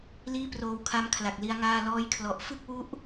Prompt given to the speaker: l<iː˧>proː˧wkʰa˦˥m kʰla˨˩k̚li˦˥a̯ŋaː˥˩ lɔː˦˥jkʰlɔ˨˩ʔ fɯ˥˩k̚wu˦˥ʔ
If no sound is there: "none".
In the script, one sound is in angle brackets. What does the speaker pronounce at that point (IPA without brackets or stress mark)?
iː˥˩